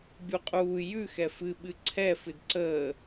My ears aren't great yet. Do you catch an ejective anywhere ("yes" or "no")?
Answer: yes